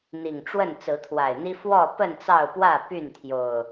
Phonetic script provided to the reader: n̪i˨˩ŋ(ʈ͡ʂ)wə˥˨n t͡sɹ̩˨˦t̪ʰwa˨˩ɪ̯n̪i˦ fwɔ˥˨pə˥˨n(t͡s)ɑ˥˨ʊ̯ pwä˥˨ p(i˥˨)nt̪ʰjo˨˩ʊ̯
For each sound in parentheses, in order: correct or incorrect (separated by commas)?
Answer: correct, correct, incorrect